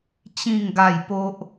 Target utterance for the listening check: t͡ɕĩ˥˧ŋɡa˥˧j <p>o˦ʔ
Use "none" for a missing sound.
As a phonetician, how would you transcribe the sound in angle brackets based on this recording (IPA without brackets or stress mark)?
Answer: p